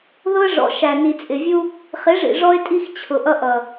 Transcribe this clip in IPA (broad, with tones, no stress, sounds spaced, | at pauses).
ð ʊ˦ ə̯ ʐ ɔ̰˨ ʃ æ˨ n i˨ t͡sʼ ɪ˨ vʲ u˦ | χ ɪ˨˦ ʐ ḭ˨ ʐ ɔ˦ ɪ̯ tʼ i˦ x t͡ɕʰ ʊ˨ ʔ ʌ˦ ʔ ʌ˨